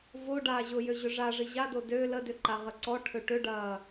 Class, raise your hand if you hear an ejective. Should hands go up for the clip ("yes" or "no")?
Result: no